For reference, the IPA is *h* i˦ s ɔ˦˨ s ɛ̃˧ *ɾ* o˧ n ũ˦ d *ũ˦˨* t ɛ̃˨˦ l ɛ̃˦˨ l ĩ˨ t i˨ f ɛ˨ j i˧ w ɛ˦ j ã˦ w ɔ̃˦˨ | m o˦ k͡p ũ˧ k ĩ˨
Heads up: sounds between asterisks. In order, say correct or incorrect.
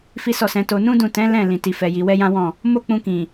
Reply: incorrect, incorrect, correct

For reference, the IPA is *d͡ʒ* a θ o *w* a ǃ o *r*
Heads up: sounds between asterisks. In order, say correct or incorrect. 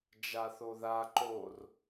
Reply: correct, incorrect, correct

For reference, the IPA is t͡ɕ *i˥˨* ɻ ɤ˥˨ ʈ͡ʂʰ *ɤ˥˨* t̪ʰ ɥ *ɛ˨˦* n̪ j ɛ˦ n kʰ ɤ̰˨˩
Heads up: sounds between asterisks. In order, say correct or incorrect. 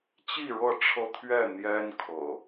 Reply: correct, incorrect, incorrect

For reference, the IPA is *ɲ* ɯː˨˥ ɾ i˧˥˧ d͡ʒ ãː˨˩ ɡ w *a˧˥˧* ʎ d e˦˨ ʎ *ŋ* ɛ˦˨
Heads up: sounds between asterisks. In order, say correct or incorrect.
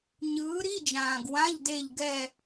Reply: correct, incorrect, incorrect

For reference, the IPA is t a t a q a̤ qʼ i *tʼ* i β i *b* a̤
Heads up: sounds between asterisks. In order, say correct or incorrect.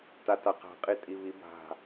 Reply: correct, correct

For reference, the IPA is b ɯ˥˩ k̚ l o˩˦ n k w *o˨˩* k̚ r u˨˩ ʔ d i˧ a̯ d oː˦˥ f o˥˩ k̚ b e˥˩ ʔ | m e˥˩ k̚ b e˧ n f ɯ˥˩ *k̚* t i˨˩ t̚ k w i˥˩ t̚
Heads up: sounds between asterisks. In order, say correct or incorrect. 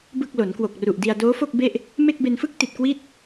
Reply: correct, correct

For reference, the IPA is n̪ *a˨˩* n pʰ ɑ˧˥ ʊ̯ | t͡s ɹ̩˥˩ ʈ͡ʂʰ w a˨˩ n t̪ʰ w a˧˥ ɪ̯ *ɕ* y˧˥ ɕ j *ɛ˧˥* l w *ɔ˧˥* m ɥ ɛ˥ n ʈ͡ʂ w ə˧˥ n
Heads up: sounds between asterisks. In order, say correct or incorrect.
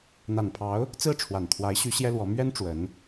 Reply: correct, correct, incorrect, correct

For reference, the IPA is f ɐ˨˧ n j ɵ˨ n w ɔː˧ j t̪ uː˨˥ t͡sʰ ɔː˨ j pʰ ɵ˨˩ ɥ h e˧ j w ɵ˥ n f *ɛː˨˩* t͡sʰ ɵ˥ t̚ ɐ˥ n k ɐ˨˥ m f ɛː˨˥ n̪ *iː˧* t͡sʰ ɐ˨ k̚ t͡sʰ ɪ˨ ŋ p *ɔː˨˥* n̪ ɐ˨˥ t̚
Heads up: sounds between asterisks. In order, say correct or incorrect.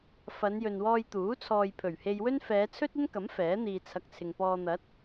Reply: incorrect, incorrect, incorrect

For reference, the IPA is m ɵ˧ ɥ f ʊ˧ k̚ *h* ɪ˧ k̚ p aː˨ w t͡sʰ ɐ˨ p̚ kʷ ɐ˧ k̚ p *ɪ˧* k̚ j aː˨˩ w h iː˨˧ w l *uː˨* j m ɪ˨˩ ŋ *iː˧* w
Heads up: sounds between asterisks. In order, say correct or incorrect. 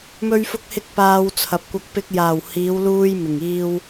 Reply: correct, correct, incorrect, correct

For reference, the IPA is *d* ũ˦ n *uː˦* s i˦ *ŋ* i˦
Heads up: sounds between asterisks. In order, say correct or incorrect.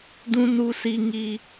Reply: correct, incorrect, correct

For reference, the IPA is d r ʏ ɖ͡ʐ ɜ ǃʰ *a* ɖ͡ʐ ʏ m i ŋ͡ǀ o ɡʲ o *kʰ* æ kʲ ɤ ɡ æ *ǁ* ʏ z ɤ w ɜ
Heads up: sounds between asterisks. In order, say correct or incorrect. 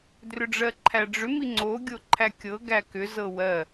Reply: incorrect, incorrect, incorrect

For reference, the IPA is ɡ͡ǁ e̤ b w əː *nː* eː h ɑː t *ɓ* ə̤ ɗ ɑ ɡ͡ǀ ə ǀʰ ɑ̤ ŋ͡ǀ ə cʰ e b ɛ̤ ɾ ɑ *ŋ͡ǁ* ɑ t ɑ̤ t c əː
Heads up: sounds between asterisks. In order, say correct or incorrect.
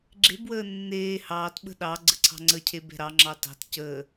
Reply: correct, correct, correct

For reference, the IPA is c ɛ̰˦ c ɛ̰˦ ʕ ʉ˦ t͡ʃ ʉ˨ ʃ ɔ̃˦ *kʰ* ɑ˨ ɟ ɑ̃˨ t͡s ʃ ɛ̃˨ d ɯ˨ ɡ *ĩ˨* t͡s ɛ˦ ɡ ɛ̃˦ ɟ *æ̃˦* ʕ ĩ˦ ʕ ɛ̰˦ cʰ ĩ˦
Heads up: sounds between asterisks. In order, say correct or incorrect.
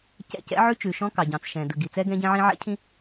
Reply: incorrect, incorrect, incorrect

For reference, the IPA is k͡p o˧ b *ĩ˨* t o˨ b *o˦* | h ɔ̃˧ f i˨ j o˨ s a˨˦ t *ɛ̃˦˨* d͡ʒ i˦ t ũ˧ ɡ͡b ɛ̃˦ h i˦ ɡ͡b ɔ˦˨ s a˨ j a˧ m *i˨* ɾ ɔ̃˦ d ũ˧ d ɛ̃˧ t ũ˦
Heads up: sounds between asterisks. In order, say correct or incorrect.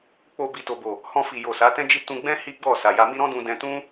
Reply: incorrect, incorrect, incorrect, incorrect

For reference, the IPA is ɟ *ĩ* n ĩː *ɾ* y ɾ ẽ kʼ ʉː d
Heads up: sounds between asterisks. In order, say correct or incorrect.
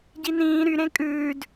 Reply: incorrect, correct

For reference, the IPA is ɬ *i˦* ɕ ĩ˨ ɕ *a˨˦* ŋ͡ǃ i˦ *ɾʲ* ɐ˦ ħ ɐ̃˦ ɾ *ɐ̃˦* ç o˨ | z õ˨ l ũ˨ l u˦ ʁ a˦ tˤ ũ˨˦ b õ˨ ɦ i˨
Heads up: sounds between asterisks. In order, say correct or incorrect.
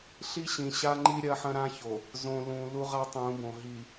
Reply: correct, incorrect, correct, incorrect

